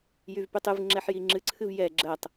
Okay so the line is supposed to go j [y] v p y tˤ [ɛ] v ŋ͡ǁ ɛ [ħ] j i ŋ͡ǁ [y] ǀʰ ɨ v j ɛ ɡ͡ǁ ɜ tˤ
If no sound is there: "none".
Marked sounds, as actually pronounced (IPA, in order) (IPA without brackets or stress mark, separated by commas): y, ɨ, ħ, ɨ